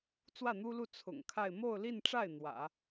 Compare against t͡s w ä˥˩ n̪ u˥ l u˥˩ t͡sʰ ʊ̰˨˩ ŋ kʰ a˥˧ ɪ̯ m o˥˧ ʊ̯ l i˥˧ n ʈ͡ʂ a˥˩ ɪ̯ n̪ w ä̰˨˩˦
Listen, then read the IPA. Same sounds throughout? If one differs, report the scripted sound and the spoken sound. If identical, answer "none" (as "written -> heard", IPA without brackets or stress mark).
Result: none